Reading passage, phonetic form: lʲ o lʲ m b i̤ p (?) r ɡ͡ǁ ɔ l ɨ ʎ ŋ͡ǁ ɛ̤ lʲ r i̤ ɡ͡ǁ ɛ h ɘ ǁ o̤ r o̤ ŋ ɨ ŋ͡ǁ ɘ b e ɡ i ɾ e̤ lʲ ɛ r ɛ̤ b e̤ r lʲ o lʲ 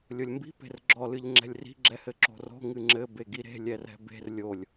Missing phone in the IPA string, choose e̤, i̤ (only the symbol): e̤